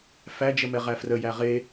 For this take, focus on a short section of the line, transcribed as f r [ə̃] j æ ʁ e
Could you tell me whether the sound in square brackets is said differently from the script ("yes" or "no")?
yes